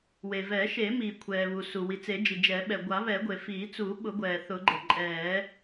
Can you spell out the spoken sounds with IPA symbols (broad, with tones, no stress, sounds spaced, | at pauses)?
w e˩ v ɛ˨˩˦ ʃ e˨˩˦ m iː˩ kʷʰ ɛː˩ β u˩ s u˩ w i˩ t͡s e˨˩˦ d͡ʒ i˩ d͡ʒ ɛ˨˩˦ ɓ ɛ˩ ɡʷ a˨˩˦ β ɛ˨˩˦ ɡʷ e˩ f iː˨˩˦ t͡s u˨˩˦ ɓ ʊ˨˩˦ ɡʷ ɛː˩ θ ʊ˨˩˦ ɡ͡ǃ ə˩ ǃʼ ɛː˨˩˦